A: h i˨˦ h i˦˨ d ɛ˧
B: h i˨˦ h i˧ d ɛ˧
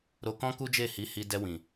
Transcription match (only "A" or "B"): B